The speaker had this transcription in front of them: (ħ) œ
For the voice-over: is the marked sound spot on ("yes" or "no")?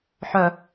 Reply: yes